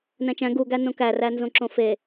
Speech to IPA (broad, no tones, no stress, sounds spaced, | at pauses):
n æ̃ t͡ʃ æ̃ ɡ u ɡ æ n õ k æ r æ n z õ ǁ õ f e